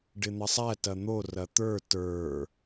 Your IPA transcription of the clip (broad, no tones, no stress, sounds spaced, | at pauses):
ɖ ɪ n̪ ɐ sˤ æ t ɐ n̪ o r ɐ t̪ ə˞ t ə˞